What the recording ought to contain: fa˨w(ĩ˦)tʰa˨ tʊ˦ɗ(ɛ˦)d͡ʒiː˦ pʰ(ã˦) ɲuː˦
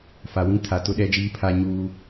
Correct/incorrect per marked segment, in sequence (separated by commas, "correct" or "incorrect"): correct, correct, incorrect